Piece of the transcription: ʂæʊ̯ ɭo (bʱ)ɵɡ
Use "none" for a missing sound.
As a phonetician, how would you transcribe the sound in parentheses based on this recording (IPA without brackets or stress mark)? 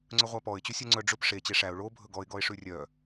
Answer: bʱ